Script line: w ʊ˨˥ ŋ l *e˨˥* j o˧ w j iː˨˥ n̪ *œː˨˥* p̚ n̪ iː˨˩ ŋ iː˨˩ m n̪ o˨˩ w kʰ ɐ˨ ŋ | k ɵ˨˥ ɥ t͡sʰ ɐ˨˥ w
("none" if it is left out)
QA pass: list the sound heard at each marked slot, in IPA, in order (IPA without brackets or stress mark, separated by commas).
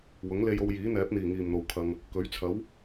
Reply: e˧, ɛː˨˥